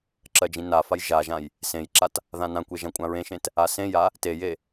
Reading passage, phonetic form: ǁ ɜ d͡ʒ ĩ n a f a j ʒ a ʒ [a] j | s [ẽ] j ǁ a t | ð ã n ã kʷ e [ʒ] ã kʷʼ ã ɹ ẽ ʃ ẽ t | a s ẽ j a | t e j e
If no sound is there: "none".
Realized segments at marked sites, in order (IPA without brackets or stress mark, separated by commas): ã, ẽ, ʒ